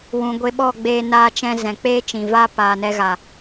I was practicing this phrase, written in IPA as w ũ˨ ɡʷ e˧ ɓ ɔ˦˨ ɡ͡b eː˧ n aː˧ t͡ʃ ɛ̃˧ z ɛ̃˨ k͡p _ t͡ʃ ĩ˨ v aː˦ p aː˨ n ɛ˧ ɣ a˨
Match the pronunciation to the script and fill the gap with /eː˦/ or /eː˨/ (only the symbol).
eː˦